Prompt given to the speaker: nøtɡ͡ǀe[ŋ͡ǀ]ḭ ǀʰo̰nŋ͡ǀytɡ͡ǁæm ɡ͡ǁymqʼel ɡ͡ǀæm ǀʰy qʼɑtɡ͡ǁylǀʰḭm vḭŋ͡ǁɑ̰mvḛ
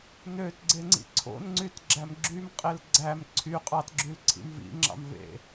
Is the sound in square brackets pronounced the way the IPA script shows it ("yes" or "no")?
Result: yes